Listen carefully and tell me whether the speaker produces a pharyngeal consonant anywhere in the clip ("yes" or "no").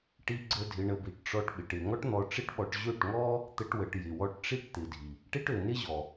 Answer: no